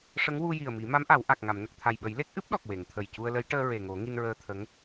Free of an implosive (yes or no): no